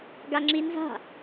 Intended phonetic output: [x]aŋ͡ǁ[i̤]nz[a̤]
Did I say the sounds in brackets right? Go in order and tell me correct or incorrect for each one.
incorrect: ɡ, incorrect: i, correct

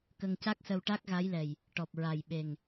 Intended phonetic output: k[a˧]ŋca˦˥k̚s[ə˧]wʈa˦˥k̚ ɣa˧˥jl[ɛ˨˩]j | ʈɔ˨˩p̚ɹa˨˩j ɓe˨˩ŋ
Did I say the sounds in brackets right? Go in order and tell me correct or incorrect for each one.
incorrect: ə˧, correct, correct

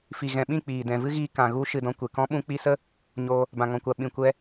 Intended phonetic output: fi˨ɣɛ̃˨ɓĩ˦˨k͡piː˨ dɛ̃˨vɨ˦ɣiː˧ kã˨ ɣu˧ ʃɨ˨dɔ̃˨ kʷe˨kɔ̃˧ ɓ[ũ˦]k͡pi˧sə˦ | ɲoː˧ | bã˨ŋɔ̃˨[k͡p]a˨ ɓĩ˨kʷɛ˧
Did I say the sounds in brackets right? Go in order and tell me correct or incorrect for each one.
incorrect: ũ˧, incorrect: kʷ

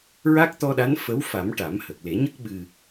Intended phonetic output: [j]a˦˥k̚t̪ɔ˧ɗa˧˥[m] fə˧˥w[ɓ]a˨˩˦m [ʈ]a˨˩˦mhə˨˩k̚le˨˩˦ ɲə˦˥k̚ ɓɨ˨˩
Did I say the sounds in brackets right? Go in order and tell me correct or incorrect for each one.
incorrect: ɹ, incorrect: n, incorrect: f, correct

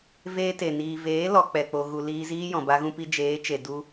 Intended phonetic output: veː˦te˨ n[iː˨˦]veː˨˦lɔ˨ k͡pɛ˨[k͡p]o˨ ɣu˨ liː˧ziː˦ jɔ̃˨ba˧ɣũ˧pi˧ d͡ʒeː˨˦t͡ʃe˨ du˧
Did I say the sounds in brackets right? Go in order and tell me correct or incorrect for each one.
incorrect: iː˨, correct

